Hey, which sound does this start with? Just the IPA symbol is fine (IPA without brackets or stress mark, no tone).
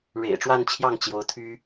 ɻ